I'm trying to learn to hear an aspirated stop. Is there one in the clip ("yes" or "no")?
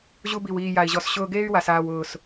no